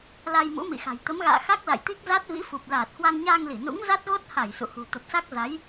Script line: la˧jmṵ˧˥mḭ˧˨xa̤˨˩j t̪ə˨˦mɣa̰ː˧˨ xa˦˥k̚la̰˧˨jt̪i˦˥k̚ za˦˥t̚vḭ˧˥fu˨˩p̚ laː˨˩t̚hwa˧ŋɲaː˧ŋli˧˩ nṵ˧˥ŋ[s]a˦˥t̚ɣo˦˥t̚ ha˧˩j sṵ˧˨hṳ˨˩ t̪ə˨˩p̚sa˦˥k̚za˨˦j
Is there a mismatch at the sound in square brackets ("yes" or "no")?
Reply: yes